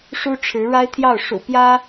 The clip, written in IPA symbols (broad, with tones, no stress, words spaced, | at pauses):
ʂu˥ʈ͡ʂʰɻ̩˧˥ ɻa˥ɪ̯t̪ʰjɑ˥˩ʊ̯ ʂṵ˨˩ pjä˥